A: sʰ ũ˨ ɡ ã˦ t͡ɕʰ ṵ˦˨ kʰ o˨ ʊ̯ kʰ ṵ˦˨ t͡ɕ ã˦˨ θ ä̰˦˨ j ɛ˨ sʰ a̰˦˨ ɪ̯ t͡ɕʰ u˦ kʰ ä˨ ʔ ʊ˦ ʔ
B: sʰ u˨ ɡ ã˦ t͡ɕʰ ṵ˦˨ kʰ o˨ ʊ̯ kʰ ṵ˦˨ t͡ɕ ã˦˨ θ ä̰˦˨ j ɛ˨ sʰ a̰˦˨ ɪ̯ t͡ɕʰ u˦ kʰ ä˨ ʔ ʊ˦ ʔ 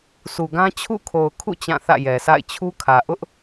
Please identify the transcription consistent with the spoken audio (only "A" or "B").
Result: B